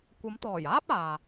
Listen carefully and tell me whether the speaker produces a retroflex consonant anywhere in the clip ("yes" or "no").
no